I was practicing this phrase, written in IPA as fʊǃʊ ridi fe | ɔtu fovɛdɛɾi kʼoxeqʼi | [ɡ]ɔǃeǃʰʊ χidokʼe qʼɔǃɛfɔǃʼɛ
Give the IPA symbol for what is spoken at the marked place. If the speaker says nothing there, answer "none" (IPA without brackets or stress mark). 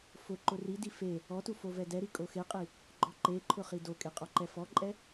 ɡ͡ǃ